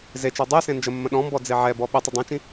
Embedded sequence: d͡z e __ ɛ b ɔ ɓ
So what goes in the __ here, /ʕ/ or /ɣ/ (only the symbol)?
ʕ